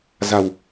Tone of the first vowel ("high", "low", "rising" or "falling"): low